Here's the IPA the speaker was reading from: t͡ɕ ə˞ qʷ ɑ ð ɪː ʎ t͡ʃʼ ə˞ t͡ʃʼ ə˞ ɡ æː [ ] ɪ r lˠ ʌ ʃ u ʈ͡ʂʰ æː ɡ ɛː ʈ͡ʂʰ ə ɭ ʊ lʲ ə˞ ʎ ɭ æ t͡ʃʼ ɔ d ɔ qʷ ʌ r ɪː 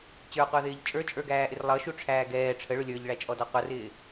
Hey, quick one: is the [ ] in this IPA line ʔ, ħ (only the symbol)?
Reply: ʔ